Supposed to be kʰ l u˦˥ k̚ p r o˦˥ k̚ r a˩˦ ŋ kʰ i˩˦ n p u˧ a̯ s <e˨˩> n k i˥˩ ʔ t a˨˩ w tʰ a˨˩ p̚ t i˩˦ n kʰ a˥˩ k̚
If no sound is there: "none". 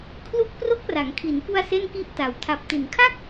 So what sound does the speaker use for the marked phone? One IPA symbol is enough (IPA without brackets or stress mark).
e˥˩